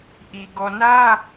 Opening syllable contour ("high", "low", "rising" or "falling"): low